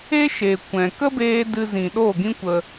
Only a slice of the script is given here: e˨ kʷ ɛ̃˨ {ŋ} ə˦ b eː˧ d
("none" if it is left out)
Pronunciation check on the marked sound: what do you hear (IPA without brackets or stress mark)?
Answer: k